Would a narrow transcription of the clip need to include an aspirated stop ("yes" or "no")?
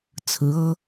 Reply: yes